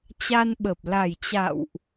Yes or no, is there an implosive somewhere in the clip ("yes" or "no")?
yes